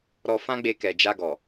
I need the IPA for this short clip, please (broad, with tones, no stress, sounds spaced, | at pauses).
ɾ ɔ˧ f ã˦ ɡ͡b e˧ k ɛ˨ d͡ʒ a˧ ɡ ɔ˨